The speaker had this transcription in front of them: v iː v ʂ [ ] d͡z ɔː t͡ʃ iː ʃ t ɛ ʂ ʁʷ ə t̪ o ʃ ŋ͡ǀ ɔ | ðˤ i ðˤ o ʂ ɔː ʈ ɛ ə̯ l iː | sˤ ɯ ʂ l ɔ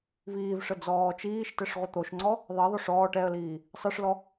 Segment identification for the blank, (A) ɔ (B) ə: B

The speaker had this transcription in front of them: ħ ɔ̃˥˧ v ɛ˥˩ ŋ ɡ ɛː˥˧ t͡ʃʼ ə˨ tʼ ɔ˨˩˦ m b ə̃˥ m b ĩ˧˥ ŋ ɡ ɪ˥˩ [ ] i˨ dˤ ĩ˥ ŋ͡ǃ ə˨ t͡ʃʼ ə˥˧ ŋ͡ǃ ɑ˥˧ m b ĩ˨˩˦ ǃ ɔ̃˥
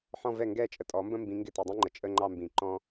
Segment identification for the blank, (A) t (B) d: A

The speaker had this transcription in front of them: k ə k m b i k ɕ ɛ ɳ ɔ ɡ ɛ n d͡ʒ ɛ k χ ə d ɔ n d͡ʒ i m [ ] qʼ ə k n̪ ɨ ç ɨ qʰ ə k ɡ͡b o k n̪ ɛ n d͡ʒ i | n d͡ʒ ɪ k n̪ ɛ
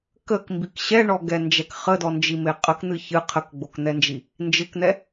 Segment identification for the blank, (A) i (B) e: B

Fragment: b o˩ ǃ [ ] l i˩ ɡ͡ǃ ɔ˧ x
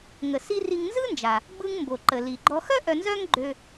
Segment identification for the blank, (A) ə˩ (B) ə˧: A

